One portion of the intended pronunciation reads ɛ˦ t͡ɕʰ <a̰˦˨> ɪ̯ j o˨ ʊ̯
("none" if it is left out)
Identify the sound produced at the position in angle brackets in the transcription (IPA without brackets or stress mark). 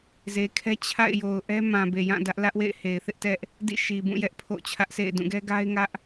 a̰˦˨